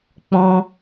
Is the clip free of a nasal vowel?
no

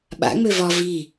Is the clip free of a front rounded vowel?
no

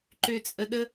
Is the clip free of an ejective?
no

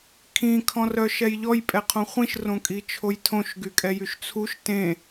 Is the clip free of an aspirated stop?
no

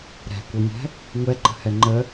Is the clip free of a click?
no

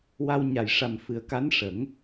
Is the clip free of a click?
yes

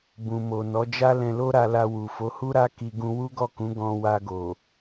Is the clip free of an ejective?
yes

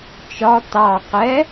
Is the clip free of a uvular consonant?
no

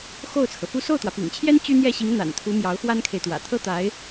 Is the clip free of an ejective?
yes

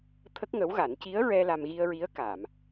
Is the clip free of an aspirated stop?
no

